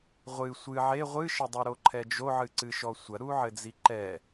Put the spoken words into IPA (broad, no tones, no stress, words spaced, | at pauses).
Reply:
ʁʷɨ sʷɨ ʕe ʁʷɨʃɘdˤu ɾoǃʰɛd͡ʒoʕɨ ǀɨʃɔsʷɐ ɾuʕɘd͡ziǃɛ